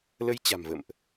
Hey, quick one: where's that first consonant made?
tongue tip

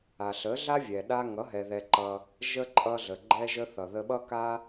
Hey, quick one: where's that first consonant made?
tongue tip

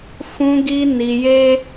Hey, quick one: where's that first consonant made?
lips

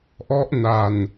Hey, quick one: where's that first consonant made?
throat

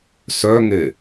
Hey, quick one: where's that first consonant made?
tongue tip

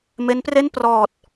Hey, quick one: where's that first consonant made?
lips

